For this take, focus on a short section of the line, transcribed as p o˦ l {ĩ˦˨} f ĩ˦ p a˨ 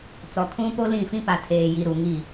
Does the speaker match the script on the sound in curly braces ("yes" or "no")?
yes